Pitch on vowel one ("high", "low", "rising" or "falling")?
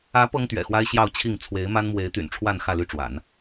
rising